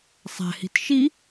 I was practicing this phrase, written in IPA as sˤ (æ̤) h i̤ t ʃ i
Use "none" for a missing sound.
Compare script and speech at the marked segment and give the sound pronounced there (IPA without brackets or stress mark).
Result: æ̤